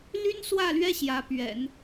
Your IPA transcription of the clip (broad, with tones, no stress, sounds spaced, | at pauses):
l y˥ n s w ä˥˩ l ɥ ɛ˥ ɕ j ä˧˥ p ɥ ɛ̰˨˩˦ n